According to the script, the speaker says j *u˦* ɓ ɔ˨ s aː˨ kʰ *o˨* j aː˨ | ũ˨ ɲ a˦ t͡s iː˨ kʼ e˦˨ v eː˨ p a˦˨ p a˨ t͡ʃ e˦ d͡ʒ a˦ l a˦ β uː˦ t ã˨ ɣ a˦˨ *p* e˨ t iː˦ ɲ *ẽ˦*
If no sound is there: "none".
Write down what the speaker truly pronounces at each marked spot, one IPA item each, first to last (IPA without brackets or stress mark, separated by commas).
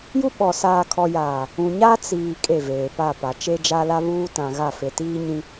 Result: u˦, ɔ˨, f, ĩ˦